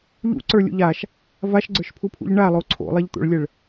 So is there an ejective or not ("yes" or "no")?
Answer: no